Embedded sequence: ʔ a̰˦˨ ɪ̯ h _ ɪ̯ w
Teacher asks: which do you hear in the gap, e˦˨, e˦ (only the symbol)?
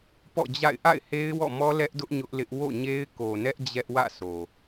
e˦